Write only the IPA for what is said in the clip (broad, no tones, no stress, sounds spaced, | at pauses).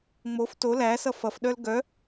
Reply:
ŋ͡m o f t o l æ s ʌ f ʌ f ɗ œ l ɡ œ